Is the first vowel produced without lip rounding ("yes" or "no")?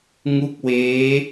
no